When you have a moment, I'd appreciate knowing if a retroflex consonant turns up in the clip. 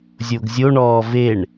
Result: yes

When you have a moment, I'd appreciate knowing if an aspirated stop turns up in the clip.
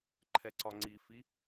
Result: yes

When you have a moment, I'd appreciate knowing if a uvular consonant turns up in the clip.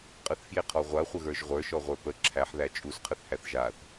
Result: yes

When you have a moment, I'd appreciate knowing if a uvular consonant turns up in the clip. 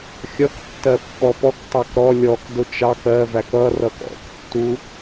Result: no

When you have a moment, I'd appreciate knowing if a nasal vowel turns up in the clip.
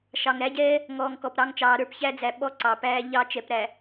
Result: no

